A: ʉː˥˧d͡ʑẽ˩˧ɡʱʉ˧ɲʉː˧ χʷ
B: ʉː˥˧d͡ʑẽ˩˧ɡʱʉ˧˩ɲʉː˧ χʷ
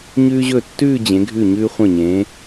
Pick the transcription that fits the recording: B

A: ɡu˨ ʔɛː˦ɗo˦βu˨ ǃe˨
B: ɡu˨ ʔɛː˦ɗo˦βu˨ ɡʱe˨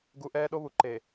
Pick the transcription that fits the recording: A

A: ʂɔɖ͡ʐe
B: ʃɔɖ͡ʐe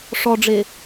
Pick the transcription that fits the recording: A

